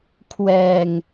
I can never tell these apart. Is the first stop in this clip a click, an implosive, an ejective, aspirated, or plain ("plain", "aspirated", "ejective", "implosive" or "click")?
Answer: aspirated